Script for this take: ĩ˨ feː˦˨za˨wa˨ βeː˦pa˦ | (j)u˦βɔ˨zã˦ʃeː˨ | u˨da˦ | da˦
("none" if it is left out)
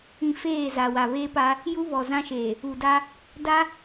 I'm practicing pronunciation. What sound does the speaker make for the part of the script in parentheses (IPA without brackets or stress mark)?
j